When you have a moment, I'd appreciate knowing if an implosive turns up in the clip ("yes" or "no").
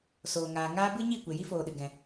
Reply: yes